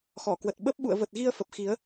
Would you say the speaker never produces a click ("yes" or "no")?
yes